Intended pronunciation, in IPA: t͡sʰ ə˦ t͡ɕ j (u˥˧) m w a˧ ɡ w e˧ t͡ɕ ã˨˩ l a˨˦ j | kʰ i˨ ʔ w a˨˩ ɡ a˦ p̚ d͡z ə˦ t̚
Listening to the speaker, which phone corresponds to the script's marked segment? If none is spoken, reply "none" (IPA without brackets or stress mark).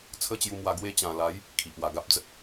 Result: u˧